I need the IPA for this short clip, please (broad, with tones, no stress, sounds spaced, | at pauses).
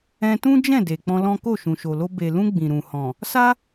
ɛ̃˧ t ũ˦ d͡ʒ ɛ̃˦˨ d e˨ k͡p ɔ̃˧ l ɔ̃˦ k o˦˨ ʃ ũ˨ ʃ o˨ l o˧ b e˨ l ũ˧ ɡ͡b ĩ˨ ɾ ũ˨ h ɔ̃˨ | s a˦